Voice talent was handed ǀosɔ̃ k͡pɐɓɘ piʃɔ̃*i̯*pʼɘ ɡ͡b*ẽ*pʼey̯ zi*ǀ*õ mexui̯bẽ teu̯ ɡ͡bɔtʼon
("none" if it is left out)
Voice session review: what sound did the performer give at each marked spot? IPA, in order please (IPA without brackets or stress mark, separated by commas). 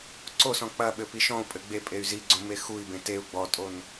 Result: u̯, e, ɡ͡ǀ